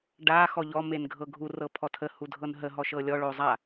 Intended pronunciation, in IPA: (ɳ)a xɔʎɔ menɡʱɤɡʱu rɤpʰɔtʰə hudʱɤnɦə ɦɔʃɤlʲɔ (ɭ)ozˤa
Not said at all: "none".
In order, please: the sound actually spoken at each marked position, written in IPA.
ɖ, ɭ

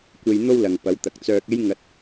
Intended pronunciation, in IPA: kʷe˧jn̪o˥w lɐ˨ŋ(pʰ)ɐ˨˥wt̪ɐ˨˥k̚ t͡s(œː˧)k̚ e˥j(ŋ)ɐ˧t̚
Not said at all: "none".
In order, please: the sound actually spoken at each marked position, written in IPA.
p, œː˧, ŋ

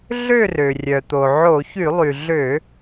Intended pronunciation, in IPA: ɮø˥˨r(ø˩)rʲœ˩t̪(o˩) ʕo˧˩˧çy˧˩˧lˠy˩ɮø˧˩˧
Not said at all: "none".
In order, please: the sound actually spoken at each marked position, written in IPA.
ø˩, o˩

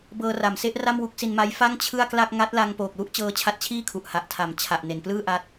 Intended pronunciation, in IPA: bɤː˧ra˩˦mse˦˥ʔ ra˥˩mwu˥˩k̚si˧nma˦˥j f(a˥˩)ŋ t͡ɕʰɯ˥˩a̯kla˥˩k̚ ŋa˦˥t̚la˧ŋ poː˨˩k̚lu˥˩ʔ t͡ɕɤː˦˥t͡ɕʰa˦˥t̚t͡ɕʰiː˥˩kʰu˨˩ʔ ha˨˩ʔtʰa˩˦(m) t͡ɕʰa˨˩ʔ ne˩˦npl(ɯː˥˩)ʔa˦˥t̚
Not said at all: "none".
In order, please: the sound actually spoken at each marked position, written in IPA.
a˥˩, m, ɯː˥˩

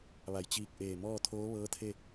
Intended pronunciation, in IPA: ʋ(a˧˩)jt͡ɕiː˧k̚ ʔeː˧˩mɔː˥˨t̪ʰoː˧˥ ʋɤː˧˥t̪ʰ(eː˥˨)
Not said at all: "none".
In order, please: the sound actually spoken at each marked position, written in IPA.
a˧˩, e˥˨

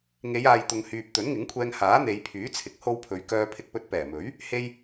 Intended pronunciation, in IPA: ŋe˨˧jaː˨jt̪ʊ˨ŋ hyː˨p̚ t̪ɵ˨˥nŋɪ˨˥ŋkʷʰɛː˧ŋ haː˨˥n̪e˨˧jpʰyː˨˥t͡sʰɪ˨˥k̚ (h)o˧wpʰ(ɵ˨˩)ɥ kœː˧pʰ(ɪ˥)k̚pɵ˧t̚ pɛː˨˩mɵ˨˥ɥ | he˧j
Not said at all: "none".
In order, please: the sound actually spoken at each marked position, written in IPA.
h, ɵ˨˧, ɪ˧

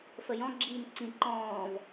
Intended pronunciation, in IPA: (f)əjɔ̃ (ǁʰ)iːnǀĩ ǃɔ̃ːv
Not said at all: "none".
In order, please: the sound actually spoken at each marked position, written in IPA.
f, ɡ͡ǁ

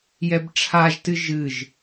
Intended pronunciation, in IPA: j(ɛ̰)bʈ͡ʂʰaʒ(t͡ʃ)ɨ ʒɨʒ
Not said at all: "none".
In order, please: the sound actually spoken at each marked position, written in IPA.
ɛ, t

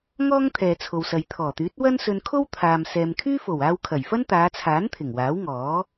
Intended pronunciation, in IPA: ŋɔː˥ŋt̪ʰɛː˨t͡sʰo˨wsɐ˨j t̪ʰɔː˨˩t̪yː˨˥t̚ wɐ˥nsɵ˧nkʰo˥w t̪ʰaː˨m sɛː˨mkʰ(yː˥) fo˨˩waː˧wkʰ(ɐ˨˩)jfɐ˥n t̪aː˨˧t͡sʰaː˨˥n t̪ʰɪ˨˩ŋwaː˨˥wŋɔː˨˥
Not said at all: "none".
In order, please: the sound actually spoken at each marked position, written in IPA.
yː˥, ɐ˨˩

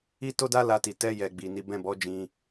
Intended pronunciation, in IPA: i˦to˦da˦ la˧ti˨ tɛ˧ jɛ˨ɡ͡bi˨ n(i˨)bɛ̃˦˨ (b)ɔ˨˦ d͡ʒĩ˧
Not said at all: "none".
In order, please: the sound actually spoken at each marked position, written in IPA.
i˨˦, b

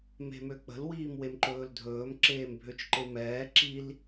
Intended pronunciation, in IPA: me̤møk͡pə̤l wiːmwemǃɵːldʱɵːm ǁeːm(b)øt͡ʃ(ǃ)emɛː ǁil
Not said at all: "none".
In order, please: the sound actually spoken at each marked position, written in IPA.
bʱ, ǃ

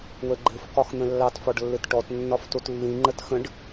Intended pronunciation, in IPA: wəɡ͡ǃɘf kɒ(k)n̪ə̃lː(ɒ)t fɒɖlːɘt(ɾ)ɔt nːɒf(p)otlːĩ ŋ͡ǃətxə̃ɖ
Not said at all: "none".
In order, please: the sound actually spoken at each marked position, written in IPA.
x, ɑ, ʈ, t

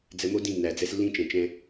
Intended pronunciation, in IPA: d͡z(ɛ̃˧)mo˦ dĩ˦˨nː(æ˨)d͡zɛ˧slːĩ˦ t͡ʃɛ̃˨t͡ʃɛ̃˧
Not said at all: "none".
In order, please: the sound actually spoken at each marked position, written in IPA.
ɛ˧, æ˨

